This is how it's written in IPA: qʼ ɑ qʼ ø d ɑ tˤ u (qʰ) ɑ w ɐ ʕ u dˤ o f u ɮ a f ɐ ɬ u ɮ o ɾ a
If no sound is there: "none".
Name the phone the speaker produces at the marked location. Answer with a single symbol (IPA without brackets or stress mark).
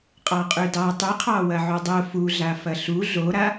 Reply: qʰ